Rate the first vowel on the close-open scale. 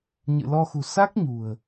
close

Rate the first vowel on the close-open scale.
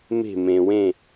mid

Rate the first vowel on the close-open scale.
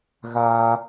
open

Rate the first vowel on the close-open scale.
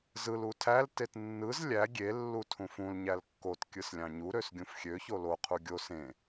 close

